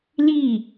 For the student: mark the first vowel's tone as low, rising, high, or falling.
falling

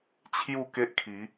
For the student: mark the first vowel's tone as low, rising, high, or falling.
falling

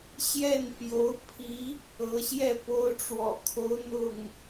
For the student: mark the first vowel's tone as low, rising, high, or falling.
falling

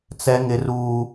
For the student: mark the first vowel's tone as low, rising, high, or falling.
high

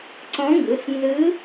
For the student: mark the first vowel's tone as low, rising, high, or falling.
rising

